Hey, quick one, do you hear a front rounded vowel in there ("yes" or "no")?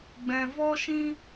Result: no